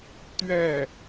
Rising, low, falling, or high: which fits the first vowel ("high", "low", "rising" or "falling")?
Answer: falling